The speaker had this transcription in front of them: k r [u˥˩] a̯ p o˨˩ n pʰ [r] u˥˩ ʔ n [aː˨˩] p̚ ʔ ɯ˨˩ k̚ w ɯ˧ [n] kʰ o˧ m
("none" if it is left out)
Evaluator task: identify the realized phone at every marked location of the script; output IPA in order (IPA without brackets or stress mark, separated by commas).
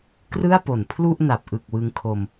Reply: ɯ˥˩, l, a˨˩, ŋ